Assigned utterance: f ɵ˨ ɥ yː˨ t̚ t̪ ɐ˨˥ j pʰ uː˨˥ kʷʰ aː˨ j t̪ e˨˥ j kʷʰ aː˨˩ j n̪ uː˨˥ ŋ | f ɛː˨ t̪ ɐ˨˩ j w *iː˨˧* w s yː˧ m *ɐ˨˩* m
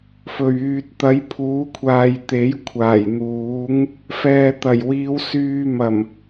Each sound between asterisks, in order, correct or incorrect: correct, correct

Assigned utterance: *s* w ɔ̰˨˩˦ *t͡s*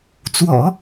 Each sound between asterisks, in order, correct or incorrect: incorrect: t͡s, incorrect: none

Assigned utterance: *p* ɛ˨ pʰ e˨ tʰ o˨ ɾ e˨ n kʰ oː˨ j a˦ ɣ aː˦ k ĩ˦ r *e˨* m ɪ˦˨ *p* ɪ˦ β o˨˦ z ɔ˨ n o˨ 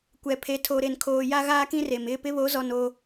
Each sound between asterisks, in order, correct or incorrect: incorrect: kʷ, correct, correct

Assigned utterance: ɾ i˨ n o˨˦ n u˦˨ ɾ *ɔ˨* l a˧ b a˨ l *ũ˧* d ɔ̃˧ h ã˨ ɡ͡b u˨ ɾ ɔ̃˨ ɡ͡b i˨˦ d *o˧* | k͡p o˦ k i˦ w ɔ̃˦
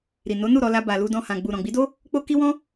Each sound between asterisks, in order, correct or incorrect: incorrect: ɔ˧, incorrect: u˧, incorrect: o˦

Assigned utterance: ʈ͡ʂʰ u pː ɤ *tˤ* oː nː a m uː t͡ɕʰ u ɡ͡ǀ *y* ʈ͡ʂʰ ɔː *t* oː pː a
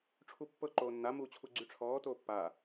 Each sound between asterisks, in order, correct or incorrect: incorrect: ǃ, correct, correct

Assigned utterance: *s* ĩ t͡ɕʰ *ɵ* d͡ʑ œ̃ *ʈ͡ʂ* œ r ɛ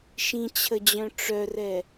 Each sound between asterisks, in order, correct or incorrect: incorrect: ʃ, incorrect: ə, correct

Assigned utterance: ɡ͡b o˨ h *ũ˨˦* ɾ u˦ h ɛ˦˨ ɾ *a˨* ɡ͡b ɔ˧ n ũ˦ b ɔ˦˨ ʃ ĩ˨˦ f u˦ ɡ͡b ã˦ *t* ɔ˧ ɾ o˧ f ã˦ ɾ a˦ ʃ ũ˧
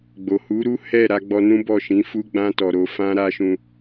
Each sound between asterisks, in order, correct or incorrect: incorrect: u˨˦, incorrect: a˧, correct

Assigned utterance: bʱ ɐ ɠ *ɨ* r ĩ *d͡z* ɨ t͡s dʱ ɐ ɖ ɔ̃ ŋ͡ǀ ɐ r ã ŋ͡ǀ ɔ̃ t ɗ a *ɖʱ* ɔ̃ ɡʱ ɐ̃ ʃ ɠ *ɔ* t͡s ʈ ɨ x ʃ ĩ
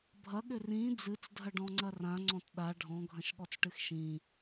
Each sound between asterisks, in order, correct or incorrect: incorrect: ʏ, correct, correct, correct

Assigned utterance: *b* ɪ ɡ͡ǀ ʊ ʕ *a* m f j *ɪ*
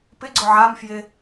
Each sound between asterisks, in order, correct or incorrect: incorrect: p, correct, correct

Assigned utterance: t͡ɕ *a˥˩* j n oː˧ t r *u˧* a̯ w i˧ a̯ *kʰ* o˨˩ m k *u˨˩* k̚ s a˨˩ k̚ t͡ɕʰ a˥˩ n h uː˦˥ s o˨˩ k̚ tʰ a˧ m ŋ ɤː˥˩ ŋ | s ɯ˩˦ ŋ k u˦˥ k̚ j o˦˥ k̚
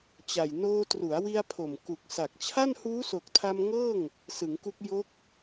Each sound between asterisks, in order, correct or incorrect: incorrect: a˨˩, incorrect: u˩˦, incorrect: pʰ, correct

